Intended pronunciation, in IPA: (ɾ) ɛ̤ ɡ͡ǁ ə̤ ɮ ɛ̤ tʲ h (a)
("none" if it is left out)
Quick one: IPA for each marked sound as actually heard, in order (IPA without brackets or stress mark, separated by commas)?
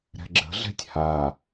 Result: ɾ, a